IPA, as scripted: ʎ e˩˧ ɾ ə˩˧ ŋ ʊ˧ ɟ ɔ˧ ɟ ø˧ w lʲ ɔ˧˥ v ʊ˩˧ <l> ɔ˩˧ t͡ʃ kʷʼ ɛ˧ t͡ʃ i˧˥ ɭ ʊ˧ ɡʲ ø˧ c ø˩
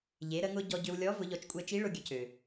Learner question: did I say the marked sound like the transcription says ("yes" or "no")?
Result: no